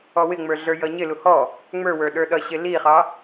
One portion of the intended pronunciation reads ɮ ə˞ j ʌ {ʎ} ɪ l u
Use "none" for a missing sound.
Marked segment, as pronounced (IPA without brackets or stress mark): ɲ